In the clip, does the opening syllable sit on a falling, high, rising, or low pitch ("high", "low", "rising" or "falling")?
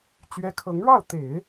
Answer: rising